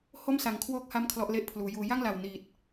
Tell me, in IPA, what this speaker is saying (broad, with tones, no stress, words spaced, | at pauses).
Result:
ho˥˩msa˩˦ŋkʰwoː˦˥k̚ha˦˥m kʰlɔ˦˥ʔle˥˩ʔpʰluː˩˦juː˧ ja˥˩ŋla˨˩w ni˨˩t̚